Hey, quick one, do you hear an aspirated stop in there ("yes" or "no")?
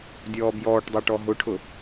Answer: yes